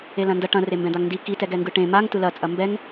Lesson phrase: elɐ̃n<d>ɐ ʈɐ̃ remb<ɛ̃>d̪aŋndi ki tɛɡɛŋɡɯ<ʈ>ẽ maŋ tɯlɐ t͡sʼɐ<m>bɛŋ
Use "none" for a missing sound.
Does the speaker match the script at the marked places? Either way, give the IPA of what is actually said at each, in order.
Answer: d, ɛ̃, ʈ, m

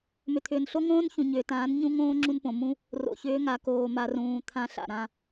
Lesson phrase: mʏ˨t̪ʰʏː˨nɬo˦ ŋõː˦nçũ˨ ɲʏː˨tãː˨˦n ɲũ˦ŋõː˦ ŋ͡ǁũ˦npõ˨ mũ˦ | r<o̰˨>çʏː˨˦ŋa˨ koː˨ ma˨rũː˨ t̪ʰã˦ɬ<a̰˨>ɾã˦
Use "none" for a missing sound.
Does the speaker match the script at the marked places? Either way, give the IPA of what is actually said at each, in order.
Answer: o̰˨, a̰˨

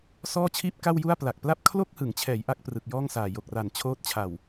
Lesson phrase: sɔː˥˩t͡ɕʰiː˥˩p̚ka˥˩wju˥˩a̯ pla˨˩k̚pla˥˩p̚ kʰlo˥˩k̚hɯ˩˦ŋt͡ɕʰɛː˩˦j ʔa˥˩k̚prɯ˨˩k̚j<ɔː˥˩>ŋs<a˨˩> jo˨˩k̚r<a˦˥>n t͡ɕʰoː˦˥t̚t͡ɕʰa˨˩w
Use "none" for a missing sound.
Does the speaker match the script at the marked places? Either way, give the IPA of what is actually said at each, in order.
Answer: ɔː˥˩, aː˨˩, a˨˩

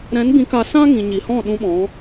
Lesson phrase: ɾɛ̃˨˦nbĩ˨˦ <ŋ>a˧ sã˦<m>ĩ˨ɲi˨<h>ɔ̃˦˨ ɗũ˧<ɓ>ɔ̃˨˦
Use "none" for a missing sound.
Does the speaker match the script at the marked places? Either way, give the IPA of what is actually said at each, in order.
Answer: k, ŋ, h, ɓ

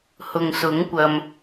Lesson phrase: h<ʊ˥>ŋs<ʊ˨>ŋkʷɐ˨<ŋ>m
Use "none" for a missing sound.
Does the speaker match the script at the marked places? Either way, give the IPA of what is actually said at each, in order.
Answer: ʊ˨, ʊ˨˥, none

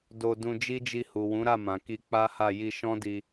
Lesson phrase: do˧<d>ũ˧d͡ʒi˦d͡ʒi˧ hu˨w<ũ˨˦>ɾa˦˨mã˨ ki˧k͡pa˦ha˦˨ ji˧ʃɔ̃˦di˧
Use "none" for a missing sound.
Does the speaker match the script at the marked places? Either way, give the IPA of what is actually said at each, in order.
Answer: d, ũ˨˦

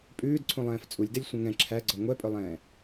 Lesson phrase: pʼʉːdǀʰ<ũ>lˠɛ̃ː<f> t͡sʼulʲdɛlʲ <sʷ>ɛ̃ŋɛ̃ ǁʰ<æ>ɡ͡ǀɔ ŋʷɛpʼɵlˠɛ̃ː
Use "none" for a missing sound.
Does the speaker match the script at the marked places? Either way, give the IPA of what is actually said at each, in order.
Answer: ũ, f, sʷ, æ

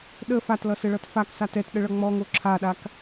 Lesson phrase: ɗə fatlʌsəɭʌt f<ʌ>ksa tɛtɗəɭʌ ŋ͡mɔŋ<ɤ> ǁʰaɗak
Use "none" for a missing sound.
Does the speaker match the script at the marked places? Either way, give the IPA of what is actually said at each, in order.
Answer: a, o

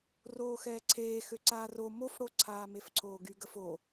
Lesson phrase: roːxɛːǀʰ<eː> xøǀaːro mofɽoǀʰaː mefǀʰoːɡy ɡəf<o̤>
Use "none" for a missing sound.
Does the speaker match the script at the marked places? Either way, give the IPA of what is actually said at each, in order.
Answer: eː, o

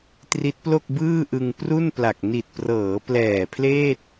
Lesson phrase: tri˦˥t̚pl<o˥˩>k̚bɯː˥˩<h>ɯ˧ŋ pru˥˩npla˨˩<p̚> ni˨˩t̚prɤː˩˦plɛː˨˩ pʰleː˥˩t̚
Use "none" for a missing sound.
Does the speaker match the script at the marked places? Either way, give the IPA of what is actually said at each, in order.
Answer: o˥˩, ʔ, k̚

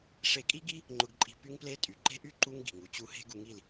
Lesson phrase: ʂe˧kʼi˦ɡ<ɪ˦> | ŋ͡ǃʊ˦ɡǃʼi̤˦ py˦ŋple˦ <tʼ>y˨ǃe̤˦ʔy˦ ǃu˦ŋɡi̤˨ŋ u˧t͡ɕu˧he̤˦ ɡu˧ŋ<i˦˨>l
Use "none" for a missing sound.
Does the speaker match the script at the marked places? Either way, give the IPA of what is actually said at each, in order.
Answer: i˦, tʼ, i˦˨

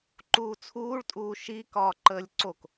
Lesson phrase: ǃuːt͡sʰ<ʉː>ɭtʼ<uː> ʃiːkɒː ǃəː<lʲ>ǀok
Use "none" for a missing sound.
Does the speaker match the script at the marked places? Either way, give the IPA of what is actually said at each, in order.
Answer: uː, uː, lʲ

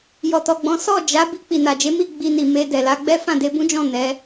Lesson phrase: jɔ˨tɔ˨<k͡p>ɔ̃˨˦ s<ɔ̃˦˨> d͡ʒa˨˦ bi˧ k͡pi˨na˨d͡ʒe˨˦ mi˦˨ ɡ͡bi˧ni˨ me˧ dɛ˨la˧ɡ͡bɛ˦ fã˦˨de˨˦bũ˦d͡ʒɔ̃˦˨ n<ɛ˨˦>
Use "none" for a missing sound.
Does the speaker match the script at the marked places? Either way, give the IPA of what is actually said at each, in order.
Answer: ɡ͡b, ɔ˦˨, ɛ˨˦

